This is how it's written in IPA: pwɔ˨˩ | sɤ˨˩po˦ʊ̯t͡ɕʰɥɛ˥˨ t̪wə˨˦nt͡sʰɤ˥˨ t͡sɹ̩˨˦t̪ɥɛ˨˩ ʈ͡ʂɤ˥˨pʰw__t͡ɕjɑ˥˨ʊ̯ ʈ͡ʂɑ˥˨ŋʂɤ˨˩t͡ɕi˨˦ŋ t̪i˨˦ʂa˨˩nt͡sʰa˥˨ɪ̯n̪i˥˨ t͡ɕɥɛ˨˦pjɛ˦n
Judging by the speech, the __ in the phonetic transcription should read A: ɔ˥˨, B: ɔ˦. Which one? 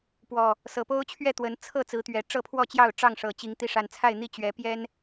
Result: A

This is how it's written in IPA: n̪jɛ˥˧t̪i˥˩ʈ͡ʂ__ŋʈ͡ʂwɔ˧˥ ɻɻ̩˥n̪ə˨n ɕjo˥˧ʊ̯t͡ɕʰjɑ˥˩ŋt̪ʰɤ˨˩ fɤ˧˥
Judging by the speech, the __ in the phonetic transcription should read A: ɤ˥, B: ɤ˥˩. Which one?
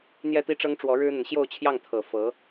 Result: A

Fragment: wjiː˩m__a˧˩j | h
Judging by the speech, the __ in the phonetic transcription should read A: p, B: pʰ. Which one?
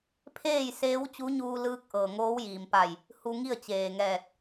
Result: A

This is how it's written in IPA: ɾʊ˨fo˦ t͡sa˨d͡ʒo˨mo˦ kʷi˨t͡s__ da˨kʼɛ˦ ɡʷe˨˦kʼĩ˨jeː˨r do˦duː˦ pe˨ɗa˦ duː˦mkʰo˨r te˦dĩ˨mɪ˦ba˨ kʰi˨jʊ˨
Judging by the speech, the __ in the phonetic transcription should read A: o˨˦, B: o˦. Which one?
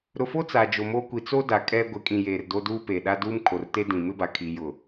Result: B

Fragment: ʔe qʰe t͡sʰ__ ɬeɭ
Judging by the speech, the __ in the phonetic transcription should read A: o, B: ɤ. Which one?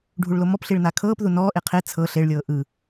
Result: B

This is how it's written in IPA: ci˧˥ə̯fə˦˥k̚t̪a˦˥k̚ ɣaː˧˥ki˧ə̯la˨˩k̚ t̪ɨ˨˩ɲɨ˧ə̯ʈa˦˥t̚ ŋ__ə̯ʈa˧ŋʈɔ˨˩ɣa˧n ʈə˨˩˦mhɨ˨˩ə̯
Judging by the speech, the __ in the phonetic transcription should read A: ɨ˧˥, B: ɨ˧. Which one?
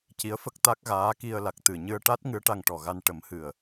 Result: A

